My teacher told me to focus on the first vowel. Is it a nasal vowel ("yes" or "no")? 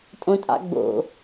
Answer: yes